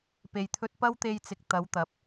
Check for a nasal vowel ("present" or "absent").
absent